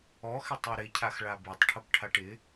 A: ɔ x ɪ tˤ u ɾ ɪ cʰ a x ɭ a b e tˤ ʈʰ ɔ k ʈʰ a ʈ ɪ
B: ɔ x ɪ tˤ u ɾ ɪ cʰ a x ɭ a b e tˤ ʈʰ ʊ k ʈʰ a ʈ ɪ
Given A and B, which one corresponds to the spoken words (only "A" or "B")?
B